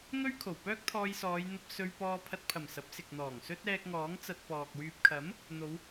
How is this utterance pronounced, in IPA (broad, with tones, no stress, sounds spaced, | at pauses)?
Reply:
ŋ ɵ˥ ɥ kʰ o˨˩ w p œː˥ k̚ t̪ʰ ɔː˧ j s ɔː˨˧ j n̪ ɐ˧ p̚ s ɵ˧ ɥ p ɔː˧ pʰ ɐ˧ t̚ pʰ ɐ˨˩ m s ɐ˨˥ p̚ s ɪ˨ k̚ n̪ ɔː˨˩ ŋ s ɵ˥ t̚ ɛː˧ k̚ ŋ ɔː˨˥ ŋ t͡s ɐ˧ t̚ p ɔː˨ k̚ w yː˨ p̚ kʰ ɐ˨˥ m | n̪ o˨˧ w